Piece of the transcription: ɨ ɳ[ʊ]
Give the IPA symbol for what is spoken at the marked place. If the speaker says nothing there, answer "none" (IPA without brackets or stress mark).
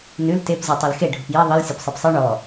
ɔ